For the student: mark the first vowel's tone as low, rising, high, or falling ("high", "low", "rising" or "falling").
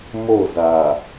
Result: falling